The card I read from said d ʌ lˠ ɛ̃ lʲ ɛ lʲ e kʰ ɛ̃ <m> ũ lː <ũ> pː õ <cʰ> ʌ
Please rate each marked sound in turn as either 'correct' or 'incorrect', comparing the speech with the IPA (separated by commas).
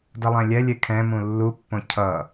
correct, incorrect, correct